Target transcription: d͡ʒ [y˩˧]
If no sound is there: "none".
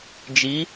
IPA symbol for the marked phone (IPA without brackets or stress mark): i˩˧